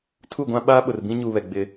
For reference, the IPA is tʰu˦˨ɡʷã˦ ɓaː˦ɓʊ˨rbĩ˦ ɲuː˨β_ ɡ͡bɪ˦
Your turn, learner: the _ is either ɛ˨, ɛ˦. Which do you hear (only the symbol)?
ɛ˨